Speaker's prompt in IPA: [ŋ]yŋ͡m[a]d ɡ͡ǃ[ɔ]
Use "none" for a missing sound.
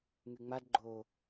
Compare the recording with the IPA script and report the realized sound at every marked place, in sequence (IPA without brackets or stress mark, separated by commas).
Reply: ŋ, a, o